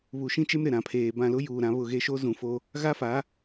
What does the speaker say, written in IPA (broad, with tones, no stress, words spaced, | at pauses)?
βu˨ʃĩ˦t͡ʃe˦m ɾɪ˨ɾã˨pʰeː˨bã˦˨ lʊ˦juː˨ ɾã˨˦βʊ˦˨ɣe˦ ʃo˦zũ˨fo˦ | ɣa˦fa˨˦